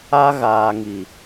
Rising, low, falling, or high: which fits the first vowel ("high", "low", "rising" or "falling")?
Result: high